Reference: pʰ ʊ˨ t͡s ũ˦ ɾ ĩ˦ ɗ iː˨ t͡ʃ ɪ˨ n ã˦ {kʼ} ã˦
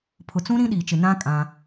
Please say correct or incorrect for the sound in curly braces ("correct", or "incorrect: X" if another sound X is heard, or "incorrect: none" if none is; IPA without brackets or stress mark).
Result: correct